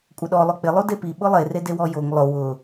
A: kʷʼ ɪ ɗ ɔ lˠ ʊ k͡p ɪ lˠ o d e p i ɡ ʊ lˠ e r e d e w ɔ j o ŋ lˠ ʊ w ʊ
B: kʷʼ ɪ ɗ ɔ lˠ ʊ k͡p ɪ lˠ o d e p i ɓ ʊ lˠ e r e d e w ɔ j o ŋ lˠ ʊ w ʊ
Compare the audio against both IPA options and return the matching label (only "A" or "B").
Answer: B